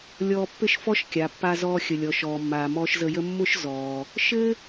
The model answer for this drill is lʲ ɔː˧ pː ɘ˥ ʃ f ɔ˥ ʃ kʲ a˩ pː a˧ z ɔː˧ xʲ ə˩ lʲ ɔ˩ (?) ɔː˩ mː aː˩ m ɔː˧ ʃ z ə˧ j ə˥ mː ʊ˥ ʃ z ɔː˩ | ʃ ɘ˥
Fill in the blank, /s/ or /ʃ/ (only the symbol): ʃ